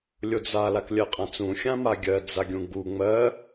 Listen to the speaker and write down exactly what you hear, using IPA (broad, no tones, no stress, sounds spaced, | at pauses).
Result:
lʲ o d͡z a l a k lʲ ɜ qʼ ã t͡s ũ xʲ ã m a ɡʲ ɜ d͡z a ɡʲ ũ ɡ͡b u ŋ͡m ɜ